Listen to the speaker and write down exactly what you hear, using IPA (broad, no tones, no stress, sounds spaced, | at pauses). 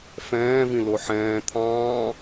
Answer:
f ɛ̃ː v ĩ l o ħ ɛ̃ː t̪ʰ ɑ̃ː